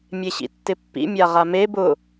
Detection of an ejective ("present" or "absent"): absent